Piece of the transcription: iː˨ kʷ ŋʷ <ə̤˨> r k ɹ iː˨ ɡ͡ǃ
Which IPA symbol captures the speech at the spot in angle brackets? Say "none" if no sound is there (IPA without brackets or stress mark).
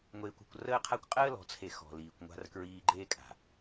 a̤˨